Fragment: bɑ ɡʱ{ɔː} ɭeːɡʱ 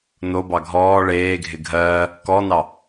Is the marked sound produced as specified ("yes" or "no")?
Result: yes